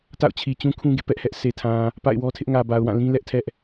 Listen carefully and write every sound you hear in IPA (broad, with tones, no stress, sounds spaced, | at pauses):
t a̰˦˨ ʊ̯ t͡ɕʰ i˨ t͡ɕ ũ˦ kʰ ũ˦ ɡ ḛ˦˨ p ɛ˦ ʔ h ɛ˦ ʔ s e˨ tʰ ã˨ | p a̰˦˨ ɪ̯ w ɔ˦ tʰ ɪ˦ ʔ ŋ ä˨ b a˨ ʊ̯ w ã˦˨ l ĩ˦ l ɛ˦ ʔ tʰ ɛ˦ ʔ